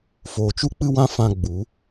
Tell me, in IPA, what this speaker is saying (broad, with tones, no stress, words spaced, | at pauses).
foː˨t͡ʃu˦k͡pɨ˦wã˦ fã˧ ɡ͡bu˨˦